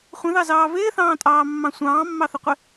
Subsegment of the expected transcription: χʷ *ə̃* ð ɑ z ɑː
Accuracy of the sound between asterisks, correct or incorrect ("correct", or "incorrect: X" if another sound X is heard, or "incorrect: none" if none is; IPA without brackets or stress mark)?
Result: correct